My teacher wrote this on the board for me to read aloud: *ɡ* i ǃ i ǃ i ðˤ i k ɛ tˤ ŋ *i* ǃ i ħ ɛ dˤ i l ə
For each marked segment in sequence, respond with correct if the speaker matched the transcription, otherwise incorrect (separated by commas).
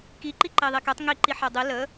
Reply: incorrect, correct